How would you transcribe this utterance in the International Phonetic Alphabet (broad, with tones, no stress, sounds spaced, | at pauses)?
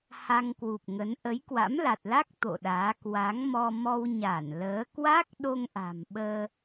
h a˧ ŋ k w u˨˩ p̚ ŋ ə˨˦ n ʔ ə˨˦ j k w a̰˧˥ m l a˨˩ t̚ l a˦˥ k̚ t̪ o̰˧˨ ɗ aː˨˦ k w a˨˦ ŋ m ɔ˧ m ɔ˧ w ɲ a˧˩ n l əː˨˦ k w a˦˥ k̚ ɗ o˧ ŋ ʔ a̤˨˩ m ɓ əː˧